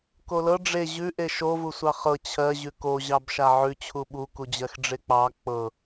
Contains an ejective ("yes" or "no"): no